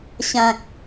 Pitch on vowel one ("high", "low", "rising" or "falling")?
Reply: low